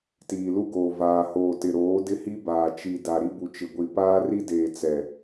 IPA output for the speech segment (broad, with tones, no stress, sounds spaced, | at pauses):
t iː˨ l u˦ ɡ oː˨ v aː˨ h oː˨ t ɪ˨ ɾ oː˨˦ d ɪ˦ h i˦ b aː˨ t͡ʃ i˨ d a˨ ɾ i˦ b u˨ t͡ʃ ɪ˨ ɡʷ i˨ p aː˦ r i˦ d eː˨ t͡s ɛ˨